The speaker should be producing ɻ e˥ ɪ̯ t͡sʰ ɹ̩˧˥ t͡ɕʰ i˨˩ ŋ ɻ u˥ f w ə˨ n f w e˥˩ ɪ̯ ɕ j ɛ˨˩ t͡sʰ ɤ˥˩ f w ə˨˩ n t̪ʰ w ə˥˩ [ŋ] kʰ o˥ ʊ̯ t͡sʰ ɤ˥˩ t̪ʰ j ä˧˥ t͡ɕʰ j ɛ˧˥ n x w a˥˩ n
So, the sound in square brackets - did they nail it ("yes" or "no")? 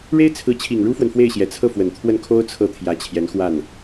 no